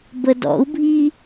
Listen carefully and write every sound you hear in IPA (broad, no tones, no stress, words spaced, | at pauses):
bədɔ̰u̯bʱi